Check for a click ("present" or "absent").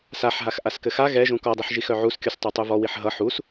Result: absent